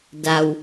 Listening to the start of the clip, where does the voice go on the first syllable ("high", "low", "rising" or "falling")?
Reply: low